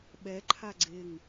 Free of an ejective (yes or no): yes